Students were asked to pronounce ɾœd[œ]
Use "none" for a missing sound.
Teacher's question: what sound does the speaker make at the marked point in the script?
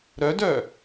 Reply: œ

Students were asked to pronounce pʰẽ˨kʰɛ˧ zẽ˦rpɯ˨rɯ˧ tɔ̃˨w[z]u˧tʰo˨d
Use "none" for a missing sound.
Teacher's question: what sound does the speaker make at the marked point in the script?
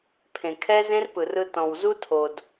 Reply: z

